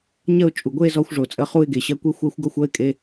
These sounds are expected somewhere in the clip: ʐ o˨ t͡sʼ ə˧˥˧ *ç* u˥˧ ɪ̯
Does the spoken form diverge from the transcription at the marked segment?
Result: yes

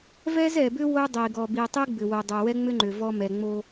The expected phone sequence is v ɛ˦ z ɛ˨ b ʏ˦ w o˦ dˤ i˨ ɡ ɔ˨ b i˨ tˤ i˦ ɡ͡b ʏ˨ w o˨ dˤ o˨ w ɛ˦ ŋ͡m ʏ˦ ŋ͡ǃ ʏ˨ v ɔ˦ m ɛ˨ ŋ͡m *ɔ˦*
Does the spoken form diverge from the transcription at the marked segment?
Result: yes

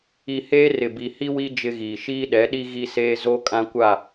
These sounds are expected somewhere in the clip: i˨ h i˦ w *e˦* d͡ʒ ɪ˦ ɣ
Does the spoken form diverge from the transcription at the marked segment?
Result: yes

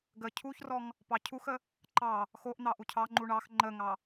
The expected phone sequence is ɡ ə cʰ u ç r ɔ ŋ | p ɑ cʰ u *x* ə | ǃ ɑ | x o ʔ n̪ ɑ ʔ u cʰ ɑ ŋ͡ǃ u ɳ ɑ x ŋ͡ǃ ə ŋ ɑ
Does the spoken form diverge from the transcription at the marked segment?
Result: no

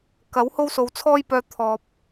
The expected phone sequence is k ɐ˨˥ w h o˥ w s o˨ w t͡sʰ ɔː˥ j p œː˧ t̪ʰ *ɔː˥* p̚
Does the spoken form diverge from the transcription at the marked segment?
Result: yes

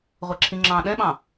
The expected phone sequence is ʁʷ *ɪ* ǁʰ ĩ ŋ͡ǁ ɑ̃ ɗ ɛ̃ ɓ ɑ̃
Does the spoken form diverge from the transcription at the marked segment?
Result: yes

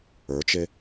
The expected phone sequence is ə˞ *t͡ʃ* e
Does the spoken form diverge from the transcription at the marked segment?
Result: no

